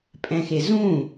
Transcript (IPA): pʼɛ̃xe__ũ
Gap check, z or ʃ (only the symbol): z